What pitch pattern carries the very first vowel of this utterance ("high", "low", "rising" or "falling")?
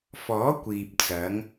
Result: rising